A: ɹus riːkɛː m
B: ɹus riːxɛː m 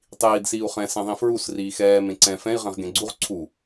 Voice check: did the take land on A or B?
B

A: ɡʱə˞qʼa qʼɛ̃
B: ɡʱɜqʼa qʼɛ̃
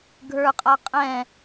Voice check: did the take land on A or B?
A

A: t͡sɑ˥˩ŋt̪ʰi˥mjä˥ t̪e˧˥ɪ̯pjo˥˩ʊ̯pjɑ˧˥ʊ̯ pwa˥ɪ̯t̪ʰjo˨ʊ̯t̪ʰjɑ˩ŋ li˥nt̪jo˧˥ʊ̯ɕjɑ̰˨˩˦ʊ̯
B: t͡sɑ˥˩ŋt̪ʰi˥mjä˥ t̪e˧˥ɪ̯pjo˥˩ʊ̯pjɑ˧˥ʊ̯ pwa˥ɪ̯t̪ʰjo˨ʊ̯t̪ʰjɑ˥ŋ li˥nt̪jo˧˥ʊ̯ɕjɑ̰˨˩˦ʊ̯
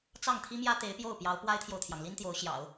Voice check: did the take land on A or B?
A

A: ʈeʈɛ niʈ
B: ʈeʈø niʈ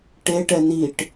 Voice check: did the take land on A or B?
A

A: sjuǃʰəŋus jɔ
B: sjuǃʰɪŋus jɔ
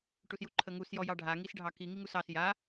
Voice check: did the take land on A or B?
A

